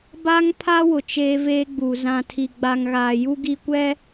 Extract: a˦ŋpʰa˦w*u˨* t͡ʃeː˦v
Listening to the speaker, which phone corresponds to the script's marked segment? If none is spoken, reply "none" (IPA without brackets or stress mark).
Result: ʊ˨